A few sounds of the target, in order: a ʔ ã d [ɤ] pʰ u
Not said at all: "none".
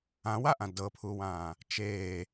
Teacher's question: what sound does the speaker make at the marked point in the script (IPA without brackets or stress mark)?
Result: ɤ